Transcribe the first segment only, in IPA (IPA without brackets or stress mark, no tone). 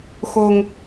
x